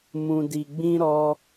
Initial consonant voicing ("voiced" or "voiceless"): voiced